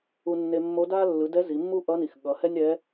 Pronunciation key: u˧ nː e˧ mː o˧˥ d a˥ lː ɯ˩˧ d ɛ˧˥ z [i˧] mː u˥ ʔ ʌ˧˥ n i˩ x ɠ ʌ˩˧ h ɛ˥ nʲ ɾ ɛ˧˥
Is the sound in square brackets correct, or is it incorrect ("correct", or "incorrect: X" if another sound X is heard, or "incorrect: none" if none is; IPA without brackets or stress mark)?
incorrect: i˩˧